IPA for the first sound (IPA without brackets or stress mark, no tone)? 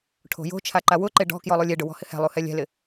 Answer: ʈʰ